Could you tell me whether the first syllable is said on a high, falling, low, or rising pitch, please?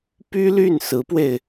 high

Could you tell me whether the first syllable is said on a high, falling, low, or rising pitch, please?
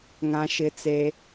high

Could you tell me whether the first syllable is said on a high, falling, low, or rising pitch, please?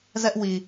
high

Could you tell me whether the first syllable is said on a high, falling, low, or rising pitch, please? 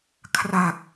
low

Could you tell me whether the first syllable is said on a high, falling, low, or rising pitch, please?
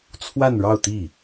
falling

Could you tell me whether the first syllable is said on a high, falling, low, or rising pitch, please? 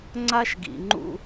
high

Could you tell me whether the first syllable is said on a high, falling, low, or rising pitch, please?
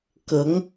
rising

